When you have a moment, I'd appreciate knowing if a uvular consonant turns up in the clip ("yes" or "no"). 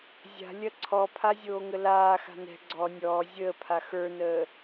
no